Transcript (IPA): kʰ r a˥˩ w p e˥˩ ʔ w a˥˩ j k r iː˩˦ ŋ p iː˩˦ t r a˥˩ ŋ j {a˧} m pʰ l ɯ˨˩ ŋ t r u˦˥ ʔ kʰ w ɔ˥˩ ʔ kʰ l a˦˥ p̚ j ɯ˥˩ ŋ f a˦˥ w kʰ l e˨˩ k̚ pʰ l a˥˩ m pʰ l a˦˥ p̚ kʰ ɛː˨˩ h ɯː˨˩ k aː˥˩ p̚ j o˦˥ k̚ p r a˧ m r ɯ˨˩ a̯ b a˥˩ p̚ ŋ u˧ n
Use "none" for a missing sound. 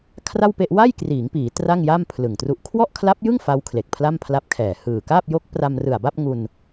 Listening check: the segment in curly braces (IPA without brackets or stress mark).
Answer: a˥˩